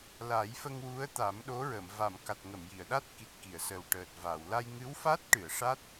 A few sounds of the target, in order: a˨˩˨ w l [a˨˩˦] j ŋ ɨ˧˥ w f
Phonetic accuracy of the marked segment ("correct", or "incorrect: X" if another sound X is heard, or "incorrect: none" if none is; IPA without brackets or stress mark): incorrect: a˧